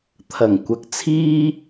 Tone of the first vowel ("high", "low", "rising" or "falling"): low